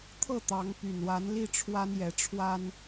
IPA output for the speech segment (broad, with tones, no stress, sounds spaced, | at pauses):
t̪ʰ ɤ˥˩ t̪ ɑ˧˥ ŋ p y˨˩ n w a˧˥ n l i˥˩ ʈ͡ʂʰ w a˥ n j ɛ˧˥ ʈ͡ʂʰ w a˥ n